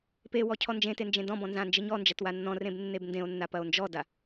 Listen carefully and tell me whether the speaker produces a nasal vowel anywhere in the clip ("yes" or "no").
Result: yes